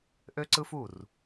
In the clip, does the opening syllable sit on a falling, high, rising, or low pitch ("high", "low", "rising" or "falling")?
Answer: high